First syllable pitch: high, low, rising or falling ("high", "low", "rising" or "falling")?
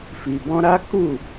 low